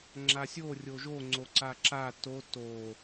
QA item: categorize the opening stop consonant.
click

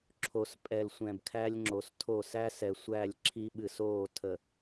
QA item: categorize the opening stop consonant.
click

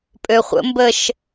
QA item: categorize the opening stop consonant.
ejective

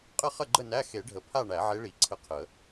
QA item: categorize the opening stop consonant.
ejective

